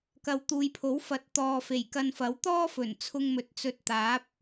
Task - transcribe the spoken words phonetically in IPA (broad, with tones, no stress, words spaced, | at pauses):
kɐ˨˧wt̪uː˨jpʰo˨˥w fɐ˨˥t̚ t̪ɔː˨fe˨˩jkɐ˧nfɐ˨˥w t̪ɔː˥fɵ˨˩n t͡sʰʊ˧ŋmɵ˨˥t̚ t͡sɵ˧t̚ t̪aː˨˥p̚